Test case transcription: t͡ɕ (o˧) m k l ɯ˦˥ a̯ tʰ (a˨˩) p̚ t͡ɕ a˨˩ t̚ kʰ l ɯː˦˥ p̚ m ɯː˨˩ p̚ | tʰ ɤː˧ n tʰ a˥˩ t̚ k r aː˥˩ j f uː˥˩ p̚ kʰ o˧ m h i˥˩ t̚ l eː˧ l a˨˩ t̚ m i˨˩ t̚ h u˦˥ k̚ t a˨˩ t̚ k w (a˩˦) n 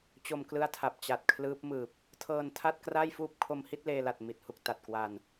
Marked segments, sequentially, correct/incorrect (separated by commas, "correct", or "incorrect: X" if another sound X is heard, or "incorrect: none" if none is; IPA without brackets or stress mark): correct, correct, incorrect: a˧